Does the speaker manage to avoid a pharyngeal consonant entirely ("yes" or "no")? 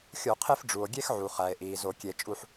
no